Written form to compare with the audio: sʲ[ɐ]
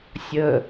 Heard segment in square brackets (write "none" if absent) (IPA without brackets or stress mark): ə